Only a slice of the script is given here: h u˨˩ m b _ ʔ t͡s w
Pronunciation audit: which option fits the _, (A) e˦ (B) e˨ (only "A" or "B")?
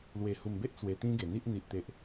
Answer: A